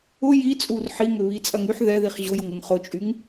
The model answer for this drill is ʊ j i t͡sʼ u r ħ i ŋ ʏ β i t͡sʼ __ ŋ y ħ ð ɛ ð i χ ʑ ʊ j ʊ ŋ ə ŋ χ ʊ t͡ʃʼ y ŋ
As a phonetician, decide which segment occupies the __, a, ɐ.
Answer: ɐ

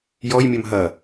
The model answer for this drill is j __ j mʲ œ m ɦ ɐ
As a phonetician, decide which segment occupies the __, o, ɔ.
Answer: ɔ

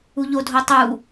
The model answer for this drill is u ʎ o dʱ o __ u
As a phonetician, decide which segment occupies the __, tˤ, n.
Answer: tˤ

